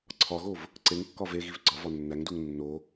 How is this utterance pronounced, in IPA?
ǀʰ ɒ ɣ o v | ǀ e ŋ kː ɒ v e ɣ i v ɡ͡ǀ ɒ v ɒ nː æ ŋ d u ŋ nː o

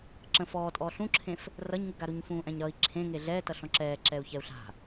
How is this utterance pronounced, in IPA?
ǁ ə̃ f ɔː tʼ ɔː ɬ ũ ǁʰ ẽ f | r ʌ ɲ ŋ u ɡ a ɾ u ɲ f ũː ʔ ɛ̃ ɲ ɾ ʌ i̯ ǁʰ ẽ ŋ e ɮ ɛː t ʌ ɬ ɔ̃ ǁ ɛː ǁ ɛ u̯ ç ɛ u̯ ɬ a̤

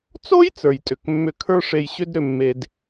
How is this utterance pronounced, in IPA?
t͡s o˥ j t͡s ə˞˩ j tʼ ʏ˩ k mː ʏ˧ kʰ ə˞˥ ʂ e˧ j ɕ ʏ˥ d ɾ ʏ˧ mː e˧ d

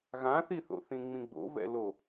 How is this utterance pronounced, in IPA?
ɣ ã θ i θ o̰ θ ĩ ŋ͡m ĩ ɡ͡b o̰ v ɛ̰ l o

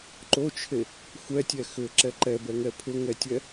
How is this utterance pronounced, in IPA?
ǃ o t͡ʃʰ e | xʷ ɛ tʲ ɛ x ʏ ǁ ɛ ǃ ɛ b ɛ ŋ ɛ pʰ ʏ ŋ ɛ tʲ ɛ

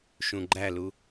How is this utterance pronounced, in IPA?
ʃ ũ ɡ͡ǃ æ l u

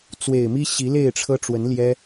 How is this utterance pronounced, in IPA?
t͡s w e˨˩ ɪ̯ m i˦ ɕ i˨˦ l e˥˨ ɪ̯ ʈ͡ʂʰ ɤ˦ ʈ͡ʂ w ə˨˦ n l j ɛ˦

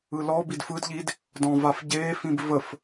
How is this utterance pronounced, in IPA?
ɯ l ɔ b i d f ɯ d ʎ i d | d ɔ̃ v a f ɟ eː f ĩ b v ə f

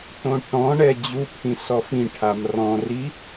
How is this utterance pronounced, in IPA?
t õ ʈ ɔ̃ ɳ ɛ d͡ʑ u pʰ ĩ s ɔ f ĩ ʈʰ a m r ɔ̃ r i

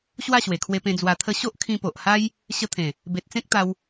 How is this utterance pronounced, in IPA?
ɕ w a˥˧ ɕ w e˨˩ kʰ w e˧ p ẽ˧ d͡z w a˧ t̪ʰ ə˦ ɕ o˦ ʔ kʰ ĩ˧ p o˨ ʔ h a˦ j | ɕ ə˧ t̪ʰ ẽ˨˩ | b e˨ t̚ t͡s ẽ˦ k̚ t̪ a˧ w

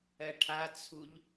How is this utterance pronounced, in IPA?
ɜ ʈʰ a t͡sʰ u ʎ

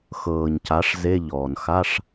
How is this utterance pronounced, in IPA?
x ɤː˩ ɲ c a˩˧ ʂ z e˧˥˧ ʎ ɔː˩ n x a˧˥˧ ʂ

